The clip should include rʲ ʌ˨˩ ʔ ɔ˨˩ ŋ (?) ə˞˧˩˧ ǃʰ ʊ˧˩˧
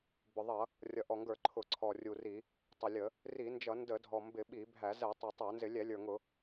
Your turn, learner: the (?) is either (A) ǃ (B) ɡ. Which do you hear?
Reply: B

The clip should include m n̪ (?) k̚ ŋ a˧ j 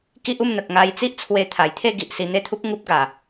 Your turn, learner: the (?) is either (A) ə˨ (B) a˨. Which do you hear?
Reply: A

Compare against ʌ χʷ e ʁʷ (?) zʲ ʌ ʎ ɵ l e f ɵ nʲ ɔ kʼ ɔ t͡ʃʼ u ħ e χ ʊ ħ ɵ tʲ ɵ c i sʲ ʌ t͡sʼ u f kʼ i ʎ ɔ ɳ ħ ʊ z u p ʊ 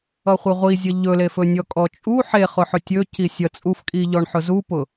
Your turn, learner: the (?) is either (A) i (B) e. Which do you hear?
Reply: A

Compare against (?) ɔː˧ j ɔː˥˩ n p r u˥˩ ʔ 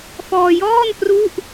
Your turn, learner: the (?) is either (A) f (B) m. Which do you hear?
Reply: A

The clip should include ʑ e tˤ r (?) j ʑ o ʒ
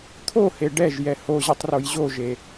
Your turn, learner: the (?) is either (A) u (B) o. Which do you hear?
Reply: B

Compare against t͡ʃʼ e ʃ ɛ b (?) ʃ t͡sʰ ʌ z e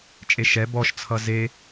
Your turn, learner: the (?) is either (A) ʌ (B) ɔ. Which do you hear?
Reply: B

